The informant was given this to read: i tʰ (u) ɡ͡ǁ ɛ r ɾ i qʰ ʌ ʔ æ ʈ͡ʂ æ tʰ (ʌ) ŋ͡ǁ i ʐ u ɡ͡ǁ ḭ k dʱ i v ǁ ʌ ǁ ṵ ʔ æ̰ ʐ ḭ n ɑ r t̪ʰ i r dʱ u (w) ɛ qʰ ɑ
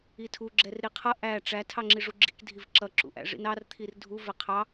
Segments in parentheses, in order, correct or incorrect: correct, incorrect, incorrect

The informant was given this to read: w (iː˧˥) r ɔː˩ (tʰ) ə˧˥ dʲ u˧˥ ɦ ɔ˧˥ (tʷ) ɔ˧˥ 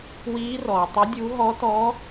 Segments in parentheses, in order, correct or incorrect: correct, incorrect, incorrect

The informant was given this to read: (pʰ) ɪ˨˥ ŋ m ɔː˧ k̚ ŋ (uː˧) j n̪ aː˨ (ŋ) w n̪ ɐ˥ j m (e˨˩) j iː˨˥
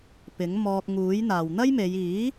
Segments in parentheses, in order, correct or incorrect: incorrect, incorrect, incorrect, incorrect

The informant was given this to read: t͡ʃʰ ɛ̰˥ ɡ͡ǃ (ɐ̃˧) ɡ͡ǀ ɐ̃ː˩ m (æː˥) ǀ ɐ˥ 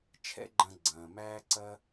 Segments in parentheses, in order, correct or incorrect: correct, correct

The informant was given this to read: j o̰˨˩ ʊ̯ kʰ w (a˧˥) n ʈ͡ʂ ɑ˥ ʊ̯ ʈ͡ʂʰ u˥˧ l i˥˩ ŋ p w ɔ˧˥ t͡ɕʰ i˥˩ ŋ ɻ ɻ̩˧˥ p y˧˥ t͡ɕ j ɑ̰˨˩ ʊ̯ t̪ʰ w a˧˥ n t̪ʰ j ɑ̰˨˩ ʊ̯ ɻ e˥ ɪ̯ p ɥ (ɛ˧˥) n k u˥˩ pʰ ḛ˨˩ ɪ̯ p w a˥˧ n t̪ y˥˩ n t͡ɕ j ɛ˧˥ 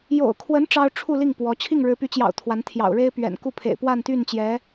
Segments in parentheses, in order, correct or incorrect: incorrect, incorrect

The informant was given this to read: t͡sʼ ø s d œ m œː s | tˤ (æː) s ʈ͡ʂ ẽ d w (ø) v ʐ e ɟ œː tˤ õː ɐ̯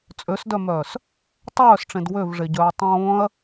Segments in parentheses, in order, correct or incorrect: incorrect, correct

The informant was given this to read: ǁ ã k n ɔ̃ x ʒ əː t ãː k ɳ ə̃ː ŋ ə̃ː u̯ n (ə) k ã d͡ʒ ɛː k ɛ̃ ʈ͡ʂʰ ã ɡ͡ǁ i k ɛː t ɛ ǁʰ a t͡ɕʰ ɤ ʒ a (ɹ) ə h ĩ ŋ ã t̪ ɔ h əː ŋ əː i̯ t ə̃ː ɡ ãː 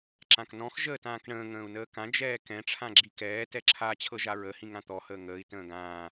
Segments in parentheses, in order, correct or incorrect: incorrect, correct

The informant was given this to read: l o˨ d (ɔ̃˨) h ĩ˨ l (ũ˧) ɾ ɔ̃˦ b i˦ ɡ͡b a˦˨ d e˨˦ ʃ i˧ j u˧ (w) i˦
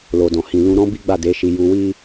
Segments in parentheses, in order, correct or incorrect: correct, correct, correct

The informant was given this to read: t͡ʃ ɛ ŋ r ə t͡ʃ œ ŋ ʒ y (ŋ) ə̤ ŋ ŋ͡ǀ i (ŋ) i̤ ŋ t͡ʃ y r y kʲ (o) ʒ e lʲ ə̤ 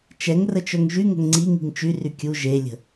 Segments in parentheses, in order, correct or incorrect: correct, correct, incorrect

